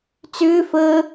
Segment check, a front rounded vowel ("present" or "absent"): present